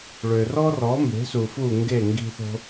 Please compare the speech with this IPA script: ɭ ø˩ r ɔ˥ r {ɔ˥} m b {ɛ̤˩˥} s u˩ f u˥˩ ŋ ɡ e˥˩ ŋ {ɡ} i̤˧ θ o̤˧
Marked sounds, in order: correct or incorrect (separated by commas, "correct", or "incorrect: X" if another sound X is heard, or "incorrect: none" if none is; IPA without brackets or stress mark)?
incorrect: ɔ˩˥, incorrect: e̤˩˥, correct